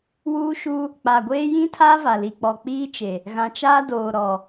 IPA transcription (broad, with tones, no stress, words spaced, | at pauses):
wuː˦ʃuː˦ | k͡pa˨ɡʷeː˦ jĩ˦tʰaː˦va˨ li˨k͡pɔ˨ k͡piː˦t͡ʃe˨ | ɣã˨t͡ʃaː˦doː˨ ɾɔ˨